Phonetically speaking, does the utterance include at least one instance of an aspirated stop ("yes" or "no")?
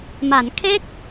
yes